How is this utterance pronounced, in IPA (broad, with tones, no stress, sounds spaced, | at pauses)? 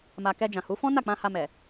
m a˨ k ɛ˧ d͡ʒ ã˨ h u˨˦ f ɔ̃˦ n a˦˨ k͡p ã˧ h a˧ m ɛ˨